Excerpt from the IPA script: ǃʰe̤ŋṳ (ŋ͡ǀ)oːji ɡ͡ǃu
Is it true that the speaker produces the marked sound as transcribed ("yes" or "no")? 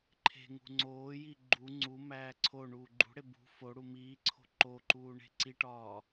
yes